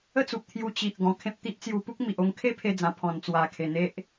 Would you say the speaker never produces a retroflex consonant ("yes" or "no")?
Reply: yes